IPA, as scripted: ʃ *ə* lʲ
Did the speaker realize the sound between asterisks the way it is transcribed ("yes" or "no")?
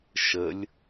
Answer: yes